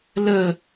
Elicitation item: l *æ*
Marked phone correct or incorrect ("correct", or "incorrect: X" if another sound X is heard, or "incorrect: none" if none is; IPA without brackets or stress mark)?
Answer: incorrect: ə